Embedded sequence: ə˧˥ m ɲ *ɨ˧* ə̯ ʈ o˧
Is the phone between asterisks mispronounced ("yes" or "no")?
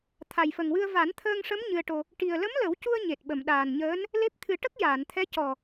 no